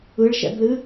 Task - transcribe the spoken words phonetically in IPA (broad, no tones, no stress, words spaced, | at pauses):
ɯɭʃɛ̰blɨ